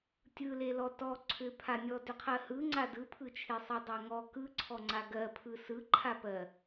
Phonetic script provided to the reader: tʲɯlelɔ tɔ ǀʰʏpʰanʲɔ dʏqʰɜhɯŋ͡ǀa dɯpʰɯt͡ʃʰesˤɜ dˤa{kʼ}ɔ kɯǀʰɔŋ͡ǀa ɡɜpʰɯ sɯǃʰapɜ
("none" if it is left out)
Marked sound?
ŋ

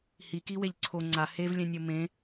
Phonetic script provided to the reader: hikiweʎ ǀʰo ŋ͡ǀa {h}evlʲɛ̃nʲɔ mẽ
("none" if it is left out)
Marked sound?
h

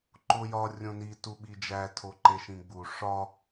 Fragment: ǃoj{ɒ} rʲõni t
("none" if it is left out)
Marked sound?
ɒ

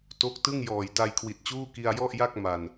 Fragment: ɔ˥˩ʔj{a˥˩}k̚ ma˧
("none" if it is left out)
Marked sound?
a˥˩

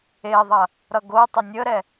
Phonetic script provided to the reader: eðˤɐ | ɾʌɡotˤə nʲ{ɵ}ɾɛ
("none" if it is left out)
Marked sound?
ə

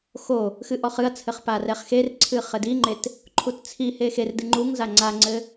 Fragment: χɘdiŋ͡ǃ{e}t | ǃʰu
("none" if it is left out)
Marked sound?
e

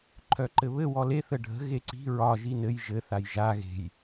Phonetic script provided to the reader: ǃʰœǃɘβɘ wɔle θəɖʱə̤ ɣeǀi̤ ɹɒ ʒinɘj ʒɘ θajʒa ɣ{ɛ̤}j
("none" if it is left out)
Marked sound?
e̤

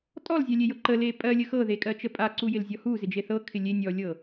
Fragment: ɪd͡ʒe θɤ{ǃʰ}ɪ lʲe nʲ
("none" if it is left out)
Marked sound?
kʰ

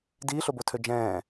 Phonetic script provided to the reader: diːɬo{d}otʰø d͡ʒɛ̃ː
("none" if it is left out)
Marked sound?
b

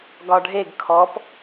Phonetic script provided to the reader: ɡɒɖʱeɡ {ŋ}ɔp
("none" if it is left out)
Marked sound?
kʰ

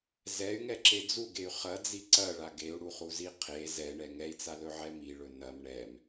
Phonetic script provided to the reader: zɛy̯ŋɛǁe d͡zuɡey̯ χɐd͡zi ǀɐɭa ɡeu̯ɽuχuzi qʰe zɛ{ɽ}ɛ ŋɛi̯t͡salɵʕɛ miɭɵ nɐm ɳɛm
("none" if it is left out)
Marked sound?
ɳ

